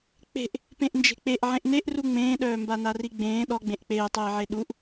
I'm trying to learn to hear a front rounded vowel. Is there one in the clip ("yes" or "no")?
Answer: yes